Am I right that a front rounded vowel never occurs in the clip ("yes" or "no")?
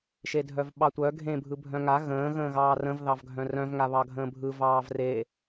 no